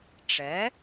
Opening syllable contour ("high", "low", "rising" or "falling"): rising